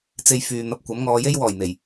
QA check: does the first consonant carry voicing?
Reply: no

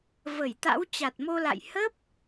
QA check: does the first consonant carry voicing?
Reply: yes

